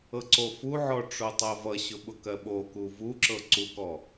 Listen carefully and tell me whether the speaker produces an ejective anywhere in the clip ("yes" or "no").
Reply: no